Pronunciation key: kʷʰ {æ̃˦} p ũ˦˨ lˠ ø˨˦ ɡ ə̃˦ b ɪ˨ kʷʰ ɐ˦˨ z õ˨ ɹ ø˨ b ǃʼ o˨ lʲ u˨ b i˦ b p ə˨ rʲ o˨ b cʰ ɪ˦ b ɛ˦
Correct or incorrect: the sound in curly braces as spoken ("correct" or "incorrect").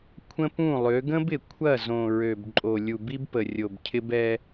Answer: incorrect